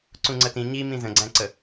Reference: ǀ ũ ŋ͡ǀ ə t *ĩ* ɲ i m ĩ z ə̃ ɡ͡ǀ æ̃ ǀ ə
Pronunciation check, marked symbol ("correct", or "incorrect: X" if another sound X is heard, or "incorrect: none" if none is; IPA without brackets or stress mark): correct